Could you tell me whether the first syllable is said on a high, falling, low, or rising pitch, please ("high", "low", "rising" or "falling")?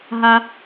high